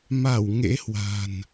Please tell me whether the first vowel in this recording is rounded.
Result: no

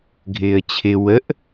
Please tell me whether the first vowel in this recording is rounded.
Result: no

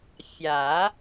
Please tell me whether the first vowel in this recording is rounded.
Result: no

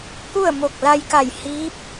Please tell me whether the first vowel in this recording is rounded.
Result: yes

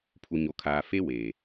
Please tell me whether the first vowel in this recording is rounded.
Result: yes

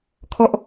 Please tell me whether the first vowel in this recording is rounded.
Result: yes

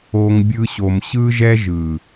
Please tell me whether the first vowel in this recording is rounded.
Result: yes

